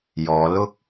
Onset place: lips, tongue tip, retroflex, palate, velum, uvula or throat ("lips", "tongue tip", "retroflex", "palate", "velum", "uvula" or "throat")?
palate